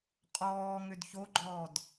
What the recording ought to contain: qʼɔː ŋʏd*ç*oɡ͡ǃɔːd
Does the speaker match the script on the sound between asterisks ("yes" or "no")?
yes